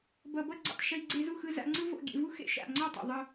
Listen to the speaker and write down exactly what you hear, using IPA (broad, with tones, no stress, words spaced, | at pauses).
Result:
bʌ˨bʌ˦ɡ͡ǀḭ˨tˤ ʃi˧ ɡ͡ǀe˧zu˦˨xɯ˧ za̰˧ŋ͡ǀɯ˦vo̰˦˨ ɡʲḛ˧vu˦xḛ˦˨ ʃa̰˦˨ŋ͡ǀʌ˦˨tˤḛ˨ ðˤɯ˧